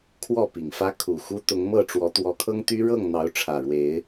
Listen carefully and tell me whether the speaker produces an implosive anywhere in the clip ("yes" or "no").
no